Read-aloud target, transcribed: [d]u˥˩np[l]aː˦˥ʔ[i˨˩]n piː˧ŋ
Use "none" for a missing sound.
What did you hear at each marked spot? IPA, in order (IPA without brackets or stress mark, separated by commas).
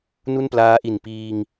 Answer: n, l, i˨˩